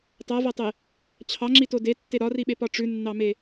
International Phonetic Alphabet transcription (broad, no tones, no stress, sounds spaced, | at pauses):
tˤ a v a tˤ e | t͡ɕʰ ɑ ŋ͡ǁ i t o d e tː e ɾ ɒ r i ɓ e p ɒ ʈ͡ʂ ʉ nː ɑ m e